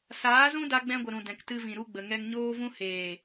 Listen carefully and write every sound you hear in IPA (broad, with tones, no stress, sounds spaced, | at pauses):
s aː˨˦ z ũ˦ d a˧ ɡ͡b ɛ̃˧ ɡʷ ə˨ ɾ ũ˨ d ɛ̃˨ k t ɨ˧ v ĩ˨ ɾ u˧ ɡ͡b ə˨ ŋ ɛ˧ ŋ ɲ oː˦ v ũ˦ h eː˨